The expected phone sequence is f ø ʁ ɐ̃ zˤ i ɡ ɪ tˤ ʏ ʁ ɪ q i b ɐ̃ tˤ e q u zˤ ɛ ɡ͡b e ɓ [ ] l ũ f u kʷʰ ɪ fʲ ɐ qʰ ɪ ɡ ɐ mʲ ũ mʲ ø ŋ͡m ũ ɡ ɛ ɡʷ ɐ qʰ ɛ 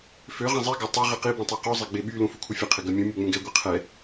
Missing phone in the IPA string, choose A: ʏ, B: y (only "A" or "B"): B